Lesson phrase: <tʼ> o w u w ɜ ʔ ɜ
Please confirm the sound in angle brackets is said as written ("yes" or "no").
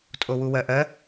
yes